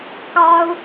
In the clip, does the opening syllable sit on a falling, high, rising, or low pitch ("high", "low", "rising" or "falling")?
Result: high